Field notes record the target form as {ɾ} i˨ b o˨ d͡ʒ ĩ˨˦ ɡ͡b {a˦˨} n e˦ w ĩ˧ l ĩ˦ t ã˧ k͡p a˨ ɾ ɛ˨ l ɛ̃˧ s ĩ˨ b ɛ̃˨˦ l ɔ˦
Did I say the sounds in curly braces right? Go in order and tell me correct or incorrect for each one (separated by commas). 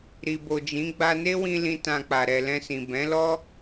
correct, incorrect